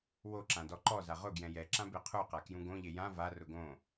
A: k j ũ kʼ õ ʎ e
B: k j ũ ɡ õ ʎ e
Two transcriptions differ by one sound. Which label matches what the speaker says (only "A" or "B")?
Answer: B